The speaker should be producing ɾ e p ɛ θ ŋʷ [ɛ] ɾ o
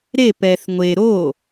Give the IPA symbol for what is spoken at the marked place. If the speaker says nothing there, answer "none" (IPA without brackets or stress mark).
e